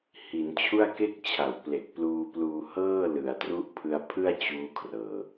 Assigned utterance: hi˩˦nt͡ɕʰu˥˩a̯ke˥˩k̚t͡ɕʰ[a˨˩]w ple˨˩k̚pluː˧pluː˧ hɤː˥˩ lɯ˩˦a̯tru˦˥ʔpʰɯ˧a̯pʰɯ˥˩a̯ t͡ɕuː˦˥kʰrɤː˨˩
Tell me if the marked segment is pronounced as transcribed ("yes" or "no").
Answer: no